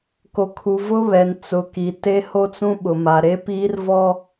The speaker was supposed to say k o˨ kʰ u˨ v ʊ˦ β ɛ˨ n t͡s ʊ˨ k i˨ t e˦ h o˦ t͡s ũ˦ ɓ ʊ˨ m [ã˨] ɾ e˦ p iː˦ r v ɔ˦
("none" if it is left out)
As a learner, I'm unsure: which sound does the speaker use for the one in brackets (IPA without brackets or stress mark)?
a˨